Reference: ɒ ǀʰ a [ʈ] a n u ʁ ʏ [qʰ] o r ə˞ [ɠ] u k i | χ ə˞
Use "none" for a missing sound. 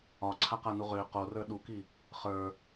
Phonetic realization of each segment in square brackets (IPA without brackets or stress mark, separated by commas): q, q, ɗ